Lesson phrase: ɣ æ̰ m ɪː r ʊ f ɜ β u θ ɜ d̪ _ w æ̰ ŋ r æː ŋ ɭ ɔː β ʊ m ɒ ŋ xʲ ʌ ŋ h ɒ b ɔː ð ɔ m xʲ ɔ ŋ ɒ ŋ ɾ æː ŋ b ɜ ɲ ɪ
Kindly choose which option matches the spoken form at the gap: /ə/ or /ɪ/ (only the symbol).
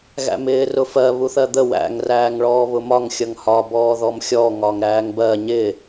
ə